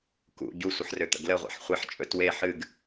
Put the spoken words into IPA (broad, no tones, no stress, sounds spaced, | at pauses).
k ṵ ɟ u sʷ ə ħ r ø t̪ ə̰ ɡ l ə ʁʷ a̰ ħ χʷ e ħ t͡ʃʼ ɵ t w e ħ ɨ ɡ